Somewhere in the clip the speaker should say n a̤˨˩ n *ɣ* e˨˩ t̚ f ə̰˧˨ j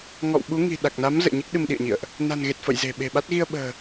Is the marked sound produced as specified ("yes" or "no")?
yes